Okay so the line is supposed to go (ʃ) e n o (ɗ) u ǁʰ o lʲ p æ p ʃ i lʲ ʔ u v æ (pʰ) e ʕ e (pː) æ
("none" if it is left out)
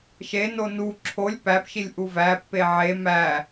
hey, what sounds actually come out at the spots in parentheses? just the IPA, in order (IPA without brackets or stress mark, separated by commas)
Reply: ʃ, n, pː, m